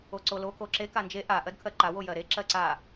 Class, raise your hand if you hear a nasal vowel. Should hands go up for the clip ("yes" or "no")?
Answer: no